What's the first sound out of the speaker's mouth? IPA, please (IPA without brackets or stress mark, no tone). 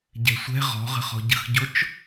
ɟ